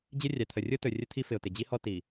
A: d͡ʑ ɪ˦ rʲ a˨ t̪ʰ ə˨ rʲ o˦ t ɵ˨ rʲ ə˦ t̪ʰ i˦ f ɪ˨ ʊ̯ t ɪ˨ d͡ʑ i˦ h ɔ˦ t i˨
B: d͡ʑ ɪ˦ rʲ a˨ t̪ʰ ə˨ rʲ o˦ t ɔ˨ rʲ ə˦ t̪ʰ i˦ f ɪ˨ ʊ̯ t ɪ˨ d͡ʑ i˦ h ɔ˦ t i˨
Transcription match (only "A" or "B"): A